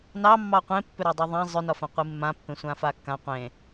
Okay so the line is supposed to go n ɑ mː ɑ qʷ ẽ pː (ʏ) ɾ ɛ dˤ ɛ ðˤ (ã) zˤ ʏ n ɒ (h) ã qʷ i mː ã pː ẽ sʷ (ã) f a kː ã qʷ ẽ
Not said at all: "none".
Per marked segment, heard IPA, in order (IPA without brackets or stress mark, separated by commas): ʏ, ã, f, ã